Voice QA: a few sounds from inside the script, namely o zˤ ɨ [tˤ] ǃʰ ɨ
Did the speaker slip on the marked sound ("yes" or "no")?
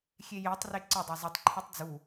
no